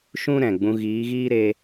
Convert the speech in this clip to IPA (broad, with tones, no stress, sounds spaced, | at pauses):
ʃ ũ˦ ɾ ɛ̃˨ ɡ͡b ũ˧ ɣ iː˨˦ ɣ iː˦ ɾ e˧